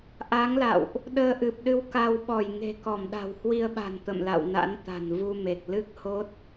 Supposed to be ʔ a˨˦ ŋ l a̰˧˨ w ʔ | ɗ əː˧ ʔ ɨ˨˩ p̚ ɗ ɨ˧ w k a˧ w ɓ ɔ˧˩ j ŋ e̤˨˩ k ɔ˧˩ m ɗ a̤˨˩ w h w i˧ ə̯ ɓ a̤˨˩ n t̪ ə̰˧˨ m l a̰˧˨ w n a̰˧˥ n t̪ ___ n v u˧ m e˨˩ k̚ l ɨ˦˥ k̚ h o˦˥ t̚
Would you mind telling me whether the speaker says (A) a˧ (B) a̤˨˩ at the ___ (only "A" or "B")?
B